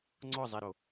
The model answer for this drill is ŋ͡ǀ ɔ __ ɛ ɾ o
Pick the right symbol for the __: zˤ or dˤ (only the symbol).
zˤ